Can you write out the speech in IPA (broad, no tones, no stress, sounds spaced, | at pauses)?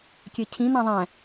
kʲ ɛ cʰ ĩ n ã ðˤ æ̃